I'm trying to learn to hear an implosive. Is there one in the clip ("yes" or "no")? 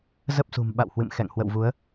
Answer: yes